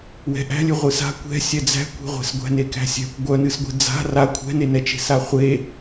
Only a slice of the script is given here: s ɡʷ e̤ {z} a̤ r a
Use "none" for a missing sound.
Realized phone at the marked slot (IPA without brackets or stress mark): d͡z